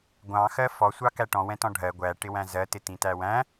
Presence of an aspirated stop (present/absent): absent